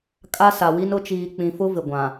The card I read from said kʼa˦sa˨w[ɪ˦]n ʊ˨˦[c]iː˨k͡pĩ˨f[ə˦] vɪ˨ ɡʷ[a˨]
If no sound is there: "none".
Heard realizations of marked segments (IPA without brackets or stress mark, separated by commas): i˦, t͡ʃ, ʊ˦, ã˨